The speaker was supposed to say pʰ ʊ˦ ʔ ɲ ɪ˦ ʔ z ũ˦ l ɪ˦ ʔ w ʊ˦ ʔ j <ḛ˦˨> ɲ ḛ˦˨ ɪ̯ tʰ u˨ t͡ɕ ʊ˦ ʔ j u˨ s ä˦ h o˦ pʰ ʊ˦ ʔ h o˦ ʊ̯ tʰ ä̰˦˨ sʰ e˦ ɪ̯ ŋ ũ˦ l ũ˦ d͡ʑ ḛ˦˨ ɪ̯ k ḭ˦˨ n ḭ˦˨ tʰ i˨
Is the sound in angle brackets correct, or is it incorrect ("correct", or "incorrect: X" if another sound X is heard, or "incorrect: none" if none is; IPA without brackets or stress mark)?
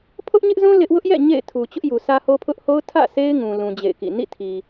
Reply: incorrect: ɛ̰˦˨